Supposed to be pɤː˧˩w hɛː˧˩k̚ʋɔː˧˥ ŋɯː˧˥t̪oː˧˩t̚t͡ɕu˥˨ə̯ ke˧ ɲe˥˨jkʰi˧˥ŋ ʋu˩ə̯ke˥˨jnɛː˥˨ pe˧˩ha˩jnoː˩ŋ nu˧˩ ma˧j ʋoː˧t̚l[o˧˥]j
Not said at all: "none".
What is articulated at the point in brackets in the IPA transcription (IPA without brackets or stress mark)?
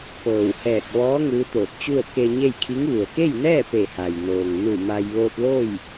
o˥˨